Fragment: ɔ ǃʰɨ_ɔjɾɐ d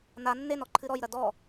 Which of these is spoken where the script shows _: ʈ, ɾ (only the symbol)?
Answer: ɾ